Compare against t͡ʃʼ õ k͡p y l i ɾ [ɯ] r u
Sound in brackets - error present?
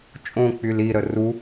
yes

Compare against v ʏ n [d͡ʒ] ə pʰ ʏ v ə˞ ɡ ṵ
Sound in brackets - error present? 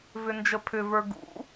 no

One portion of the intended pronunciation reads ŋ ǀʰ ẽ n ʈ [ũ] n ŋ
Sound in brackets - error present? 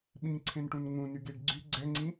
no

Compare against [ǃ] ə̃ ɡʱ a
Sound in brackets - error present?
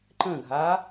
no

